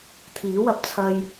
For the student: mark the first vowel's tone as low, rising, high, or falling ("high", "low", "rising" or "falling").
rising